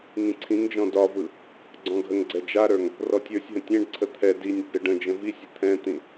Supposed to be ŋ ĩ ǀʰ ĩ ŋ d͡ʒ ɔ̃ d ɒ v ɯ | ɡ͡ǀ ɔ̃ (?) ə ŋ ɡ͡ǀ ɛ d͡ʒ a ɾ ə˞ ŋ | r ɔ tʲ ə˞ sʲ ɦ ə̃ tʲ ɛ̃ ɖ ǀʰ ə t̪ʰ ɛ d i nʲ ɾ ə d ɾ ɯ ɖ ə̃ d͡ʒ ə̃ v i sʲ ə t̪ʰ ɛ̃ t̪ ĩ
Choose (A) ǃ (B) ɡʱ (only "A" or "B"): B